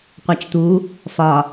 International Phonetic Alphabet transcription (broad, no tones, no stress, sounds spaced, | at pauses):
qʷ æ t͡ʃ t̪ u | f ɒ